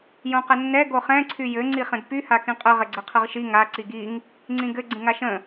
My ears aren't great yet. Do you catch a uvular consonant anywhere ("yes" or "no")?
yes